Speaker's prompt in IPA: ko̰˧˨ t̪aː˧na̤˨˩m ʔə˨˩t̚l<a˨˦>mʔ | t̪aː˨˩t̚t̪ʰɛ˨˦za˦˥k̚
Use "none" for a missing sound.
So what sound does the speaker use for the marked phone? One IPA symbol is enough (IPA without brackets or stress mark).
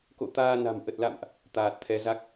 a̰˧˨